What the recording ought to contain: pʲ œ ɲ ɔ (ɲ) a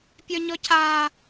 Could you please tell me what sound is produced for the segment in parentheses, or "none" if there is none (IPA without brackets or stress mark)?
c